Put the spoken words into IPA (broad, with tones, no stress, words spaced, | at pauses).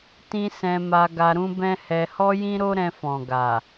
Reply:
tĩ˦ sɛ̃˧ma˧ ɡa˧ɾũ˦bɛ̃˦hɛ˧ hɔ˦jĩ˦ɾo˦ ɾɛ̃˧fɔ̃˨ɡa˨